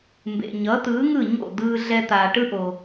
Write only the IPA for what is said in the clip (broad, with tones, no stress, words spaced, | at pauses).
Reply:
mbḛ˩ ɲʌː˩˥t̪ɯː˩˥ŋɯ˥˩ɲo̰˥˩ d̪ɯː˧ ɮɛ˧t̪aː˩ʈɯ˥ʔo˩